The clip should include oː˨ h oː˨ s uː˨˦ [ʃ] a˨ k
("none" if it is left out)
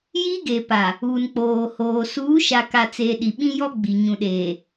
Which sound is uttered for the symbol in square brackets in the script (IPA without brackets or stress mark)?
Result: ʃ